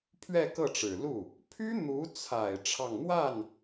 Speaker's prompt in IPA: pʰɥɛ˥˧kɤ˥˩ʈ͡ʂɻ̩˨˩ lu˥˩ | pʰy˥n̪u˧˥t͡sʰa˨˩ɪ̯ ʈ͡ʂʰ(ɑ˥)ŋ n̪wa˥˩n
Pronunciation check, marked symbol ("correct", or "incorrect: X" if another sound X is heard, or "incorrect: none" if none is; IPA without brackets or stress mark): incorrect: ɑ˥˧